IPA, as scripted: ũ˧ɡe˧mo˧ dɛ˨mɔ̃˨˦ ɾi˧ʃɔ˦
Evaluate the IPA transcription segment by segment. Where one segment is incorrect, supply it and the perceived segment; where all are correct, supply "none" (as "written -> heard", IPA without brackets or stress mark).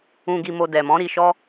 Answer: e˧ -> i˧